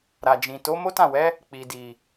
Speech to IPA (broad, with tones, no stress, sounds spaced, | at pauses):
ɾ a˨ d͡ʒ ĩ˨ t o˨˦ m o˦ t ã˦˨ w ɛ˨˦ | k͡p i˨ d i˨